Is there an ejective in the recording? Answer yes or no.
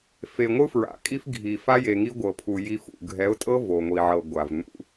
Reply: yes